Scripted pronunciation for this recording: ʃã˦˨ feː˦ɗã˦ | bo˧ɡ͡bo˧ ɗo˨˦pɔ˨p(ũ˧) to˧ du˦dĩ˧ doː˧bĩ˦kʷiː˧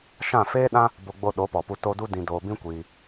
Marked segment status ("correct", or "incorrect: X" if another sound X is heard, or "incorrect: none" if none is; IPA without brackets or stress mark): incorrect: u˧